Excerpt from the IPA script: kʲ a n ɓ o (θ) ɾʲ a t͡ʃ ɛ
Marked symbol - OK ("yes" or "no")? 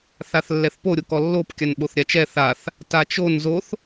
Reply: yes